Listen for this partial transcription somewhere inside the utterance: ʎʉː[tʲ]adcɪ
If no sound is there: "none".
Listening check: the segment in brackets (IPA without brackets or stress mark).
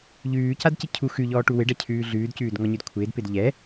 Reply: c